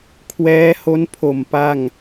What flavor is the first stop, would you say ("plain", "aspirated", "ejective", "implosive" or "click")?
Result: aspirated